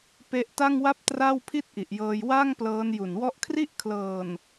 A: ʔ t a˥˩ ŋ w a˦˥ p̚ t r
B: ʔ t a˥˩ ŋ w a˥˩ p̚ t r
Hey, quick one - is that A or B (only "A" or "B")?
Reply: B